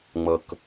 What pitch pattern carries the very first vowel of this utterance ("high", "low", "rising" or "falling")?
low